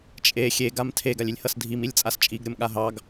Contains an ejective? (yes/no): yes